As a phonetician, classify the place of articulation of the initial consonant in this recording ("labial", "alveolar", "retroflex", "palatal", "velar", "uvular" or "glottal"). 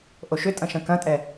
glottal